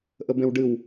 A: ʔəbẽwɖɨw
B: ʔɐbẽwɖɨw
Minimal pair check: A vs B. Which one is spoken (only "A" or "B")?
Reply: A